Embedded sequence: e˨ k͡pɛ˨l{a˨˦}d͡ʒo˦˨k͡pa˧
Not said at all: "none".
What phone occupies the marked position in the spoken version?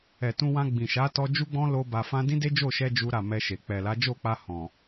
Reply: a˨˦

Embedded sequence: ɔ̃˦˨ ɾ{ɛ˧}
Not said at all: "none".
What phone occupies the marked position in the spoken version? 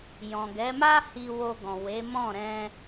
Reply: ɛ̃˧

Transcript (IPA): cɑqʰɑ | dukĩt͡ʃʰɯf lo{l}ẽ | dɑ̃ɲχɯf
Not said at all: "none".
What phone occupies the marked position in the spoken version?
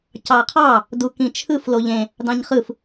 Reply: ʎ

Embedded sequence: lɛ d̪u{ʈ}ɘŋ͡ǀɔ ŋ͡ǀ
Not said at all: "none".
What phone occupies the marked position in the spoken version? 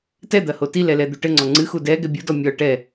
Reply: ʈ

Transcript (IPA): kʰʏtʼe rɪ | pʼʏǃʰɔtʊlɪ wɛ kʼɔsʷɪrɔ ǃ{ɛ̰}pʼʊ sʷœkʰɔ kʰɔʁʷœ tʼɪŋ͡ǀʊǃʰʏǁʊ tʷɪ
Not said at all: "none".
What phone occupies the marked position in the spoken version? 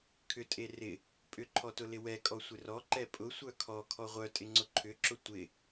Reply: ɛ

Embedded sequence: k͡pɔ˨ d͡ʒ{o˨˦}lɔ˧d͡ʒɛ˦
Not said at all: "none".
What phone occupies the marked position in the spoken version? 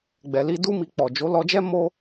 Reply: o˨˦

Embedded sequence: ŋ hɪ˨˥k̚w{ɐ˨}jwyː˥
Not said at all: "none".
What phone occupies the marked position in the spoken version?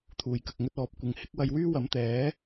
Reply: ɐ˧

